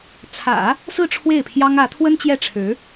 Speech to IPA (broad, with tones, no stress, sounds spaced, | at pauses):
t͡sʰ ä̰˨˩˦ | s ɹ̩˥˧ ʈ͡ʂʰ w e˥˩ ɪ̯ pʰ j ɑ˥ ŋ ä˧˥ t̪ʰ w ə˥ n t͡ɕ j ɛ˥˩ ʈ͡ʂʰ ɻ̩˧˥